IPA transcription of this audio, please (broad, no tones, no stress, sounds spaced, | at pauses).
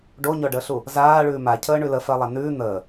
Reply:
ɖ o ɲ ɔ ɖ əː ɬ u | z aː ɭ ʉː m a cʰ əː ɳ ʉ l ə f ɜ lˠ a n ʉː n̪ əː